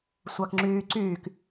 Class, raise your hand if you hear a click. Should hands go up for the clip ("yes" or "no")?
yes